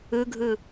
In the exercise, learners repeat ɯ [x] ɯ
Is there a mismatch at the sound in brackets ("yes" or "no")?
yes